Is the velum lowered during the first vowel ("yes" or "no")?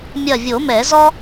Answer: no